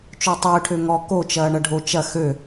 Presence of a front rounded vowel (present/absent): present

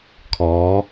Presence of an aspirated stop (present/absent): present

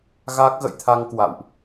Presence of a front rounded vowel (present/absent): absent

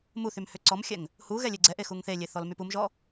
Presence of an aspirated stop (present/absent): absent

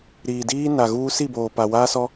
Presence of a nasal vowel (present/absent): absent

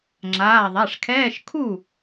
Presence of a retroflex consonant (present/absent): present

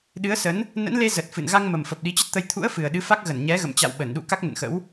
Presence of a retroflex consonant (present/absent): absent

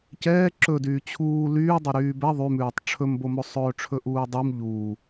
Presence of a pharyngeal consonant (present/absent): absent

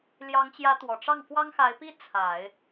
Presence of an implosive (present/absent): absent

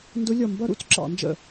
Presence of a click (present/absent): present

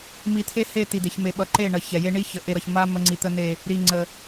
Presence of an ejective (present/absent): absent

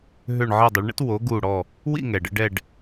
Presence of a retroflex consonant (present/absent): present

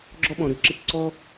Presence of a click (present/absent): present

